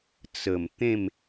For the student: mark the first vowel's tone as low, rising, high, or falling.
low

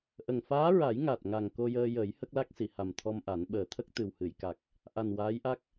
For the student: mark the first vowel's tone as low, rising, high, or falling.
low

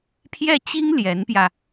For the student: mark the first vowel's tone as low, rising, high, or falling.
falling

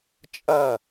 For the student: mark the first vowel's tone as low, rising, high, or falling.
falling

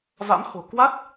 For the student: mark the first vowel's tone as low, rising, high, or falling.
rising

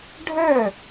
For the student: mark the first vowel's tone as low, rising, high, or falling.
falling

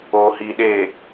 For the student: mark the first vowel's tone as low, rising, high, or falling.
low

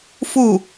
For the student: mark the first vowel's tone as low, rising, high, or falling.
falling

